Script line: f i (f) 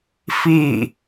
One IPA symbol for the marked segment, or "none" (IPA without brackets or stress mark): none